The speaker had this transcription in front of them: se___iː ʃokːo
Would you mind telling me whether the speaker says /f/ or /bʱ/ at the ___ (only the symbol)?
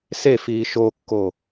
f